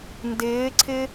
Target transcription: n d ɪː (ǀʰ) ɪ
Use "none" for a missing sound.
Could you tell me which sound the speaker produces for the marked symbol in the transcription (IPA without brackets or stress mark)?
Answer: ǀʰ